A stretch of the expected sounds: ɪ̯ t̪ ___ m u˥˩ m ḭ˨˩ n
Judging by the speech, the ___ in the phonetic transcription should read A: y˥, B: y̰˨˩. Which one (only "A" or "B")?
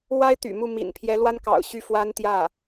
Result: B